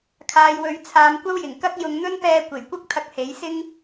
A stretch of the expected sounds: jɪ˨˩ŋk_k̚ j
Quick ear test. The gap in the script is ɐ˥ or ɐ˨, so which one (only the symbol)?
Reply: ɐ˥